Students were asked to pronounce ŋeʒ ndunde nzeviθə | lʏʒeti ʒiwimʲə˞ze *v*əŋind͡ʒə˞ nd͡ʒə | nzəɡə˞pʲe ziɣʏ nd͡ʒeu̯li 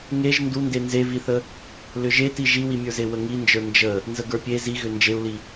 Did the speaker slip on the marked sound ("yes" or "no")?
yes